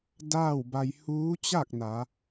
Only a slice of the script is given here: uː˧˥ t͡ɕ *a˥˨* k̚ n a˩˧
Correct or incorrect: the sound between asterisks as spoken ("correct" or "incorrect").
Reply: correct